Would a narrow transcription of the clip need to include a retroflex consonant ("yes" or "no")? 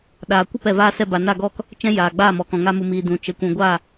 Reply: no